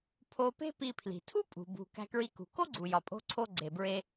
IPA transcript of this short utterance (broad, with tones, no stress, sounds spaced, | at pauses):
pʰ o˧ p e̤˥ p i˧ pʰ l i̤˩ tʰ u˥ pʼ ṳ˩ b ṳ˩ k æ̤˧ k ɹ i˧ k ṳ˩ k o˥ ɡ͡ǀ u˩ j ɒ˩ pʼ o̤˧ ǀʰ o˧ ɡ͡ǀ e˩ b ɹ e˧